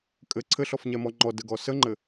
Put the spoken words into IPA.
kʼɘ ǀʰɘɬɔfɲɛmɔ ŋ͡ǃɔdəɡɔ səŋ͡ǃɘ

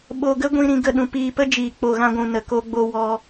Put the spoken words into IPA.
ɓo˨ɡə˦ ɡʷĩ˧ɾĩ˧ ɡə˦˨ɗũ˨piː˧ pə˦ d͡ʒiː˨k͡po˨ɣã˧ɡʷũ˨ nə˨ ko˧ɡ͡bo˧ wɔ˧

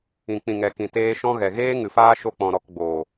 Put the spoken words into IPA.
ĩ˨ k͡pĩ˨ŋɛ˨kĩ˨ teː˧ʃɔ̃˦ɣɛ˨ ɣeː˦ŋɨ˨faː˦ ʃo˦k͡pɔ̃˧ ɾɔ˧k ɡ͡boː˨

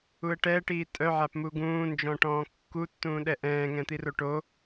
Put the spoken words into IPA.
uə̯ʈɛ ʈiːtʼœ ʕapmuɡũː nd͡ʒɔ̃ʈɔ̃ːkːu tːũːɗɛʔɛ̃ː ŋɛ̃t̪iroʈo

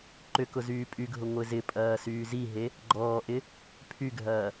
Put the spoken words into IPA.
ǃʏkʊ zyːpʼyɡʱʊ ŋʷɪzɪpʼɐː syːziɦe | ɡ͡ǃɔːʔɪ | pʰyɡʱɐː

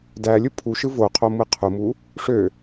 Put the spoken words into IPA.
dælʲu pʰuʃɯ voqʰo mɯqʰumu | ʂø

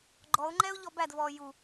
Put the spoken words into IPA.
ɡ͡ǃɔʊ̯ŋ͡ǃɛʊ̯ ʎɔbædvɔː ju

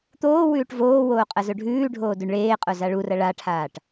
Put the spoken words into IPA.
t̪oːwʉːʈ voːwoːqʼɐzɵ ɖʱʉːɖʱoː dɵɳɭeːqʼo zaɭurɐ ɭaʈʰaːʈ

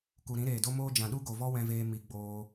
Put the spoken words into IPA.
ku˨ ɾĩ˨˦ɾeː˨do˦moː˦ d͡ʒã˨ɗu˦ɡo˨vɔ˦ wɛ̃˧veː˧ mi˧ɡ͡boː˧

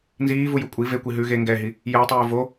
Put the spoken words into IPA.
nziːvuju kʷʼi vekʷi ɦʉ ɣeŋɡɛːɦi | jœtˤuː vo

